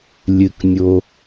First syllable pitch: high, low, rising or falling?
low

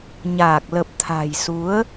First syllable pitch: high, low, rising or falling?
low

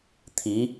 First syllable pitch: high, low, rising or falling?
rising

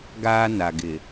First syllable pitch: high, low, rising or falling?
high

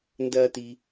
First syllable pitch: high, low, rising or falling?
high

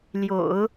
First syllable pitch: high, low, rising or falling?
low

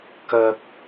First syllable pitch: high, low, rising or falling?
high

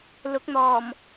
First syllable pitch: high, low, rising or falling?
rising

